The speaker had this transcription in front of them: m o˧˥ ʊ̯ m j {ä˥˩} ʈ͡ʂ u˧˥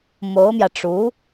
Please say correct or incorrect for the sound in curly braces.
incorrect